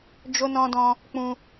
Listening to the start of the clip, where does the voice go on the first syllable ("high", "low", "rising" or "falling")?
high